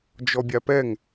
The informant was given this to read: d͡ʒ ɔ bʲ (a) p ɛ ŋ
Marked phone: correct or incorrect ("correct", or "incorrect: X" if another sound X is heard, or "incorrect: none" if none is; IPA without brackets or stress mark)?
correct